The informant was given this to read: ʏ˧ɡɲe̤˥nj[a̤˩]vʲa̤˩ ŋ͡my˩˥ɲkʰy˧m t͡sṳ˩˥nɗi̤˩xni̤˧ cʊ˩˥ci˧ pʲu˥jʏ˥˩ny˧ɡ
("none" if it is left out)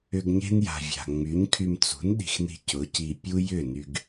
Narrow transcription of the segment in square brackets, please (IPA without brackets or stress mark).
a̤˩